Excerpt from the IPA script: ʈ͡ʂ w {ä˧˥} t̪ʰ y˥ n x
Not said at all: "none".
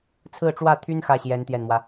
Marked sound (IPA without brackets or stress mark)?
ä˥˩